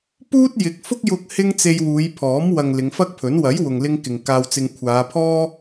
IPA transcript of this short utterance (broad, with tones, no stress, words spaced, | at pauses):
puː˥t̚jɪ˨˥k̚ fʊ˥k̚jʊ˧k̚ hɪ˥ŋ t͡se˧jwuː˨˧jpʰɔː˨˥m wɐ˨ŋ lɪ˨˧ŋfɐ˥k̚pʰɵ˨˥n wɐ˨˥j wʊ˨ŋlɪ˧ŋkɪ˨ŋ kaː˧wt͡sɪ˧ŋ kʷʰaː˨˧pʰɔː˥